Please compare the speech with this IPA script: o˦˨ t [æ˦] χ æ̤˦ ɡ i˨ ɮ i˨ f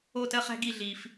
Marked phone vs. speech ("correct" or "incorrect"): incorrect